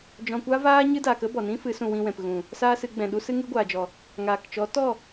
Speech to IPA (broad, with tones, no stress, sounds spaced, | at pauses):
d͡ʒ ɔ̃˧ kʷ a˦ v aː˦ ɲ ɨ˦ d a˨ k ə˦ b ɔ˨ n ĩ˦ f ɨ˨˦ s ũ˧ w ĩ˧ w ɛ̃˨ p ɣ ũ˨ | s aː˦ s ɨ˨˦ ɡ͡b ɛ̃˨ ɗ u˦ s ɨ˦ ŋ ɨ˦ ɡʷ aː˨ d͡ʒ ɔ˨ | ŋ aː˨ k t͡ʃ ɔ˨˦ t ɔ˦˨